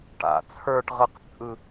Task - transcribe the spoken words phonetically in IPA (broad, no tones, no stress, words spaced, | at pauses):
ʈa̰ t͡sʰə˞ʈʁɯqt͡sʼɯ